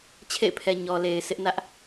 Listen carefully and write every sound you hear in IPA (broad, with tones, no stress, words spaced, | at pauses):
t͡ɕʰḛ˦˨ɪ̯pʰɛ˨ ɲɔ˨le˨ɪ̯ sʰɪ˦ʔnä˦ʔ